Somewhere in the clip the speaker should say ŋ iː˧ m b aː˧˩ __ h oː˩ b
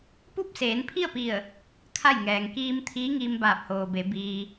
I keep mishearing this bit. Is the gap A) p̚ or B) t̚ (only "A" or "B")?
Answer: A